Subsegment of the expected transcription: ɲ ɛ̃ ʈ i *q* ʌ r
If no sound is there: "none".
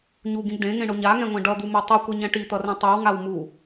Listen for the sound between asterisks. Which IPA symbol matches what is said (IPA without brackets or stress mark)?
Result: t̪